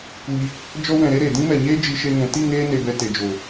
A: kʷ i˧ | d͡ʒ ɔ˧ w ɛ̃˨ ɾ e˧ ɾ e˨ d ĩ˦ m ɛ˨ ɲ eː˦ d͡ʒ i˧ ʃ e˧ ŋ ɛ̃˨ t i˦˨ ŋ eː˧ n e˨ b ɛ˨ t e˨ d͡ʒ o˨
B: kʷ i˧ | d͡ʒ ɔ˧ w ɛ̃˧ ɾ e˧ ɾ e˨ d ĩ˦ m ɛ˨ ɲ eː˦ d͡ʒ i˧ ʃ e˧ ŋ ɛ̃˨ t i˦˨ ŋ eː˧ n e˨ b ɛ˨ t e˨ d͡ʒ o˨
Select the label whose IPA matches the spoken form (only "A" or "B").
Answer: A